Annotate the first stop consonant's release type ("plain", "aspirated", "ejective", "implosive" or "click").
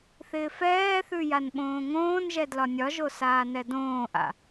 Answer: implosive